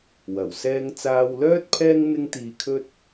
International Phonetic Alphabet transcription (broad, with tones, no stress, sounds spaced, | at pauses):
w ɐ˨˩ w s ɛː˧ ŋ t͡s aː˧ w l œː˥ t̚ pʰ ɛː˥ ŋ n̪ ɪ˥ ŋ t̪ iː˧ kʰ ɵ˥ t̚